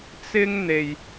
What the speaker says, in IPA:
t͡s ɪ˥ ŋ n̪ e˧ j

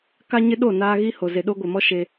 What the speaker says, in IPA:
k a˦ ɲ ɪ˦ ɗ o˦˨ n aː˦ ɣ i˦ h o˨ z e˨ ɗ o˦ ɡʷ ɪ˨ m ɔ˦ ʃ e˦

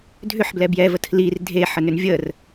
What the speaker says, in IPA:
dʱ ʏ ħ b l ɛ b j ɛ v ə tʰ l i r dʱ e ħ ə n ʏ n vʲ ə r

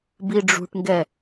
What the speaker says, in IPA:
b i ɖ͡ʐ ṳ ʈ ŋ ɡ ɛ

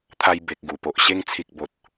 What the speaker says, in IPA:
t̪ʰ a˧ j b e˨ k̚ ɡ u˨˩ p o˨ ʔ ɕ e˧ ŋ t͡sʰ i˨ k̚ b o˨ t̚

